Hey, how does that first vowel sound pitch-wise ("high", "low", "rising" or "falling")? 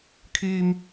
high